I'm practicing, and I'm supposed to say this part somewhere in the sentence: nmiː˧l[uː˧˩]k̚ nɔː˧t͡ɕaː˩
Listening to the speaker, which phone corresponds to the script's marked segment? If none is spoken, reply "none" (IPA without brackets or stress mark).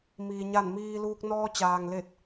uː˧